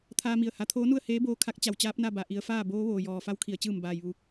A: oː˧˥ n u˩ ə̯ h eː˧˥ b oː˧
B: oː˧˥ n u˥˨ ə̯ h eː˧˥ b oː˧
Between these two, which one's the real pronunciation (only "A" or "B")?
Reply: B